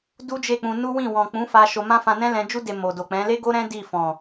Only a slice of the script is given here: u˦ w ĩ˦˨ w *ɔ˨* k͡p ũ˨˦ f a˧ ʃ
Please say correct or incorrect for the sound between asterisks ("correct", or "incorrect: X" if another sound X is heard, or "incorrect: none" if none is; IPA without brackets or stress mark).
incorrect: ɔ̃˨